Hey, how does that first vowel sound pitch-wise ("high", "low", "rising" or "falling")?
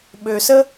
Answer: low